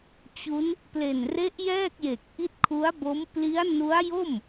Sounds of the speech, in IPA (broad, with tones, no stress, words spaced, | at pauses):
t͡ɕu˦˥n | ple˨˩nre˦˥ʔ jɛː˥˩k̚je˨˩k̚ ʔi˦˥t̚kʰu˦˥a̯bo˦˥m pli˦˥a̯nu˦˥a̯jo˥˩m